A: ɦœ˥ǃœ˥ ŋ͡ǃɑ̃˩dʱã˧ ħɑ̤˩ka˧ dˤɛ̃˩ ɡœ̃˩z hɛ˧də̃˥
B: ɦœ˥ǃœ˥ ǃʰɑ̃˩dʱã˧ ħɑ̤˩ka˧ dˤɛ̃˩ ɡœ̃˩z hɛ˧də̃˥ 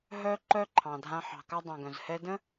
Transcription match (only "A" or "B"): B